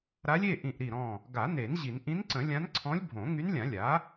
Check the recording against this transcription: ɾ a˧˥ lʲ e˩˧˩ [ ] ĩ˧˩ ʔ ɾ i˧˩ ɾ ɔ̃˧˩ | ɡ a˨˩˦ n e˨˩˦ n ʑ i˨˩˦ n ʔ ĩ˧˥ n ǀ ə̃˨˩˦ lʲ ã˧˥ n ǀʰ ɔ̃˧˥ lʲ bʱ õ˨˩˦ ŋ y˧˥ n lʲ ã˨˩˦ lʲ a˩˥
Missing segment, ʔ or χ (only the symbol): ʔ